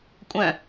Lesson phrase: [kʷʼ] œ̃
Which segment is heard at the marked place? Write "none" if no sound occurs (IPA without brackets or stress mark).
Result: kʷʼ